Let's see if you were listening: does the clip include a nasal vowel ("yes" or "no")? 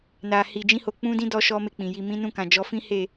yes